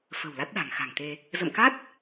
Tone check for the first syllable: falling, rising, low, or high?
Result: low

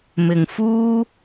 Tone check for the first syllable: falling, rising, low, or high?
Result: low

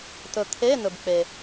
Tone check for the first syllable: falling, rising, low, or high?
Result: low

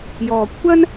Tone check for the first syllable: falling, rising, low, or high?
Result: low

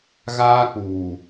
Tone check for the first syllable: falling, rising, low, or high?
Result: high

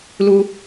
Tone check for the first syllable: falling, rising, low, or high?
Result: high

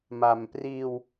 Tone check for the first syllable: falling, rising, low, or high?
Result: low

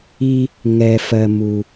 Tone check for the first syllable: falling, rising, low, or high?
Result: high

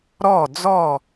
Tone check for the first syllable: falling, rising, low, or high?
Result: falling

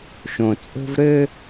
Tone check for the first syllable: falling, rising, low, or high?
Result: low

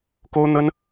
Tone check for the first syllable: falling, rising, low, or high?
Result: high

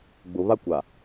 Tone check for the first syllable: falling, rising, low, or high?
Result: low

